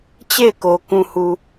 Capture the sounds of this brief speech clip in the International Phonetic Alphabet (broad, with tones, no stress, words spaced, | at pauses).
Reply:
t͡ɕe˦˨ɪ̯ko˨ kũ˨hu˨